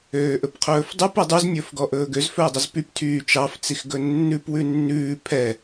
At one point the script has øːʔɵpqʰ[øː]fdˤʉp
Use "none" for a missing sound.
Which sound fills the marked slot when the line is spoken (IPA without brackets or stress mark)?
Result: ɵː